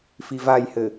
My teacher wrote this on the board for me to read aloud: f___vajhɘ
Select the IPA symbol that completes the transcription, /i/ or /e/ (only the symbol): i